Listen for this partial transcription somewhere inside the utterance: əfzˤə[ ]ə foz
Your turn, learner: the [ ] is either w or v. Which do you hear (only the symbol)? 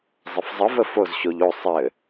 v